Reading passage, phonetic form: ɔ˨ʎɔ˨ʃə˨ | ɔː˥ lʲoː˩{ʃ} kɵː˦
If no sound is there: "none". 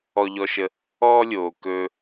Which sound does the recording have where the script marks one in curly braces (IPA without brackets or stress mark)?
none